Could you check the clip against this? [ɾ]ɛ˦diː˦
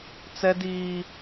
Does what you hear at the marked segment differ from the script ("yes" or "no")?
yes